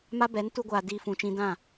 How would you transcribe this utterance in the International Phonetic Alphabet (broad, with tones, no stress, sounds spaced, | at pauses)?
m a˦ b ɛ˨˦ n t u˦ ɡʷ aː˧ d iː˧ f ũ˨ t͡ʃ ĩ˧ d ã˦˨